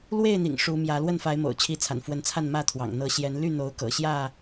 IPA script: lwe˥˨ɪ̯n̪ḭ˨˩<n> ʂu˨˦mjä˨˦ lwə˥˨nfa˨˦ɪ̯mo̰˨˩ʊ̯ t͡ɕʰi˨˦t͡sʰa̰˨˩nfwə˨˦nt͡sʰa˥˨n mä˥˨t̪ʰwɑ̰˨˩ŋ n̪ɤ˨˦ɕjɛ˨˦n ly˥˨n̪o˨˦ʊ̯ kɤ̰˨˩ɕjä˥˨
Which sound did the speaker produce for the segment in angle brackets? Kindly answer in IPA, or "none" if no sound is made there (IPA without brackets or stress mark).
ŋ